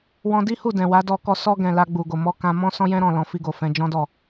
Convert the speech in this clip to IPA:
w ɔ̃˦ d i˦ h u˦˨ d ɛ̃˨ w a˨˦ d ɔ˧ k ɔ˧ s ɔ˧ ɡ ɛ̃˨ l a˧ ɡ͡b u˨ ɡ o˨ m ɔ˧ k ã˧ m ɔ̃˦ s ɔ̃˦ j ɛ̃˦ ɾ ɔ̃˦˨ l ɔ̃˧ f i˧ ɡ o˨ f ɛ̃˧ d͡ʒ ɔ̃˦ d ɔ˦˨

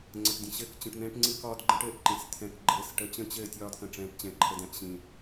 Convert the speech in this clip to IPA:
ŋ͡ǀ ə˨ ʈ dʲ ə̃˨ ɕ ɘː˦ k t͡ɕ ə̃˨ ʈ n̪ ɛ̃ː˦ ʈ ŋ͡ǀ ɨ˦ k ɒː˦ d ɡ͡ǃ ə̃˦ ʈ ɘː˨ ʔ ǃ ĩ˨ s t̪ʰ ɛ̃˦ k ɡ͡ǃ ɘː˦ s ʈ ə˨˦ t͡ɕ ə̃˦ t͡ɕ ɘː˦˨ tʲ ɒː˦ d k ə̃˨ ʈ͡ʂ ɛ̃ː˨˦ ʈ t͡ɕ ɛ̃˨ ǃʰ ə˨ d ɛ̃˨ ʔ ɕ ĩː˨

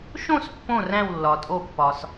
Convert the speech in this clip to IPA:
ʃ õ˥˨ s pː õ˥˨ r æ̃˥˨ w lː ɒ˩ tʼ o˧˩ pː ɒ˩ s

